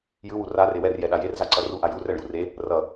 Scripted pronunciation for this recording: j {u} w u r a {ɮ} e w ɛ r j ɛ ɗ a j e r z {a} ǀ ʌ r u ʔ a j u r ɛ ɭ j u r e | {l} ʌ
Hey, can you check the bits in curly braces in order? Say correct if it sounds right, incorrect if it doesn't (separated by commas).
incorrect, incorrect, correct, incorrect